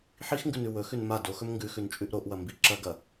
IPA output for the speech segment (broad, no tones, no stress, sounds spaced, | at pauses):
ħ i x ŋ ɡ ʉ n ʉ w ɵ x ʉ n m a d o x ɵ m ŋ ɡ ʉ x ʉ n t͡ʃʼ ʉ ʔ ɾ o ʔ w ɐ m b i ǁ ɐ ɡ ɐ